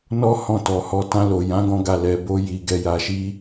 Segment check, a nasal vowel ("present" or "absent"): present